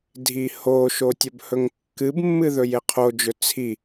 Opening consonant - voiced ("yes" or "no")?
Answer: yes